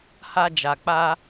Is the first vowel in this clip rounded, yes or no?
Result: no